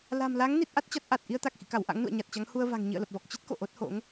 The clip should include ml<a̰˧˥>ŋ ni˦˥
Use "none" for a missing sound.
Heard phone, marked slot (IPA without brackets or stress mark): a˨˦